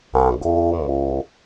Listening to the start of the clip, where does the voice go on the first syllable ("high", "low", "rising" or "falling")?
low